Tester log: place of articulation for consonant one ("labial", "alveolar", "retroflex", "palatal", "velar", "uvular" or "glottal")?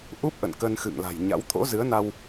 glottal